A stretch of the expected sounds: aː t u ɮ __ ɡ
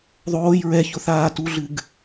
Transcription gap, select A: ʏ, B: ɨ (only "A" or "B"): B